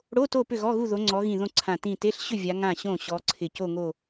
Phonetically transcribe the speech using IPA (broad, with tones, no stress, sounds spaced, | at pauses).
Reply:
ɽ o˧˥˧ t o˥˨ p ʏ˥˨ ɣ ɔ˧˥˧ ɣ u˥˨ ð o˨˦ ŋ͡ǀ ɔ˨˦ ɣ ĩ˧˩ ð õ˥˨ ǀʰ ã˧˩ t ĩ˧˩ t e˧˥˧ ɬ ɕ ʏ˥˨ vʲ a˨˦ ŋ ã˧˩ ɕ õ˧˩ ɕ ɔ˨˦ ǀʰ ɪ˧˩ c o˥˨ ŋ o˥˨